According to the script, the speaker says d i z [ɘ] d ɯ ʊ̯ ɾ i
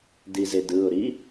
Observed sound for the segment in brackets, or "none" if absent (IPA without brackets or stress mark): e